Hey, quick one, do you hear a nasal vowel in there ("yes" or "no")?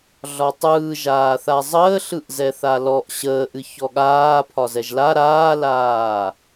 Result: no